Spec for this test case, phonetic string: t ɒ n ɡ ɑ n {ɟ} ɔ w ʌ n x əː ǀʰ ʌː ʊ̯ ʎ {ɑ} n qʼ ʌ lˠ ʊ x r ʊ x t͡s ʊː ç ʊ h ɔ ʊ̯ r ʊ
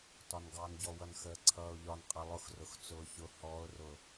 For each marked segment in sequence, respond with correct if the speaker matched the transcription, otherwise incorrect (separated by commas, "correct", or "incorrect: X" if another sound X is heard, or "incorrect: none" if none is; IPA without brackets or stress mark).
correct, incorrect: ɒ